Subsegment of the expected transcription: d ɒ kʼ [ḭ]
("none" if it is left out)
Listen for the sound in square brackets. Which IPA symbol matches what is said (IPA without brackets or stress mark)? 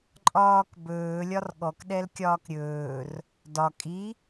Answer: i